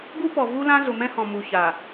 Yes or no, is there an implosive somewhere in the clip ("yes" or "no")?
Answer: no